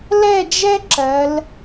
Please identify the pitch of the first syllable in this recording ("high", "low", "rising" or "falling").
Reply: falling